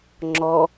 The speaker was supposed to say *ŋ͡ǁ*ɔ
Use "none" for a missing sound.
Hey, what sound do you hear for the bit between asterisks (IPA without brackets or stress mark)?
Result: ŋ͡ǁ